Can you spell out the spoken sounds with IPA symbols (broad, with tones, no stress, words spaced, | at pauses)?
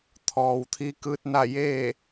t̪ʰɔː˩wt̪ʰi˧˥kɯː˧˥t̚na˥˨ jeː˥˨